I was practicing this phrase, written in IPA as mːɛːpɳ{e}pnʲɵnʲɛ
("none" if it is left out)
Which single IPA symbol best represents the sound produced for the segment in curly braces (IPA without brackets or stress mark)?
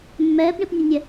i